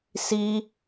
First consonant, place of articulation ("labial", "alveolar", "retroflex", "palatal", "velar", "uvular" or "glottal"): alveolar